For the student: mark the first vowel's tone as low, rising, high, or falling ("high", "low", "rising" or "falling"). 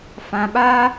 low